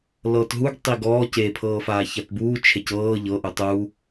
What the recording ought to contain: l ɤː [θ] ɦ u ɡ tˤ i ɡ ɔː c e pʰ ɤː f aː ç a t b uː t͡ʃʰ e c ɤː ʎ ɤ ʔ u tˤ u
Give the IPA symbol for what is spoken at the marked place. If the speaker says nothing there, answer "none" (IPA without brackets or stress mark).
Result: t